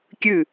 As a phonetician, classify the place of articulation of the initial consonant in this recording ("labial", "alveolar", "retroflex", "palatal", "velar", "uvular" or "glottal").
velar